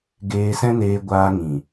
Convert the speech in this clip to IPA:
ɡ eː˧ s ɛ̃˦ n eː˧ ɡʷ aː˧ ŋ ĩ˨

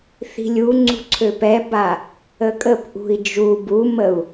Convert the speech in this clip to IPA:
θ i̤ lʲ u ŋ͡ǀ ṳ ǀʰ ø p ɛ b a | ə kʼ ə p ʔ ṳ i̯ d͡ʒ u b u m ə u̯

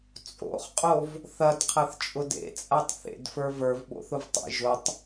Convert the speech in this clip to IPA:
t͡sʼ o̰ χ qʼ o v | θ ɐ d qʰ ɐ θ t͡ʃʼ ʊ d ḛ t͡sʼ a tˤ θ ḛ d f ə˞ v ə˞ v ɓ o̰ θ ʊ v tˤ ḛ ʒ ʊ tˤ

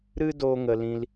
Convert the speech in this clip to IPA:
ɾ ɨ˦ d oː˧ ŋ ə˨ l ĩ˧ l

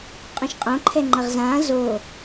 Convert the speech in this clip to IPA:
qʼ õ ʃ qʼ õ ǃʰ ɛ ŋ͡ǃ ɐ ʁ z ãː z o

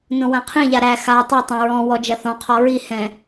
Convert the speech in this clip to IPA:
n õ w ã qʰ ĩ ʎ a ɾ æ x a tˤ o tˤ ɛ̃ ɹ ɔ̃ w ɔ d͡ʒ ɐ θ ɔ̃ qʰ ɔ ɹ i h ɛ̃

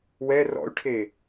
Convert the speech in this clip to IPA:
w ɛ r ɔ̰ y̯ ʈʰ eː

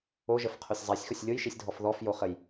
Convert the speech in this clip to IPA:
o ʒ ə f qʰ o sʲ zˤ a sʲ x o sʲ lʲ o j ʃ i sʲ dʱ ɔ f ð ɔ f j o χ ə j

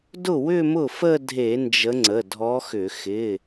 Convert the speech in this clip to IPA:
d ʊ˥˩ w ʏ˥˧ m ʊ˥˩ f ə˥˧ dʱ e˧˩˧ n d͡ʒ ə˨˦ ŋ͡ǀ ə˩˧˩ dʱ ɔ˨˦ x ʏ˧˩˧ x ɪ˩˧˩

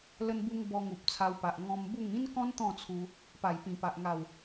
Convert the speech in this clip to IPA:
l ə˧ n b u˧ ŋ b ɔ˧ ŋ u˨ p̚ t͡sʰ a˧ w p a˨ ʔ ŋ ɔ̃˧ m b u˥˧ ŋ ĩ˦ n k ɔ̃˦ n t̪ ɔ̃˥˧ t͡sʰ u˧ | p a˨˩ j p ĩ˨˩ p a˨ ʔ ŋ a˨˩ w

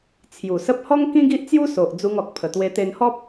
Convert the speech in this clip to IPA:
t͡sʰ j u˨˩ s ə˦ p̚ h ɔ˦ ŋ k ĩ˦ ɡ i˦ ʔ t͡s j u˦ s o˨ ʔ d͡z u˧ ŋ ɔ˨ k̚ pʰ ə˨˩ t̪ w e˧ t̪ e˧ n h ɔ˦ p̚

